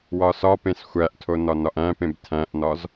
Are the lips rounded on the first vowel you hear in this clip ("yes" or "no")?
yes